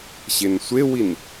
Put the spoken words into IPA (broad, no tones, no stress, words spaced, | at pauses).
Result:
ɕensʷewin